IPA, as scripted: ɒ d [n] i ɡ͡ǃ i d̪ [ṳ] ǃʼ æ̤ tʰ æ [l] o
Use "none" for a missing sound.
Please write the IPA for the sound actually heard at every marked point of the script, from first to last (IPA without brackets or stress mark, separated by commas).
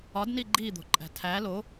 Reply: n, o̤, l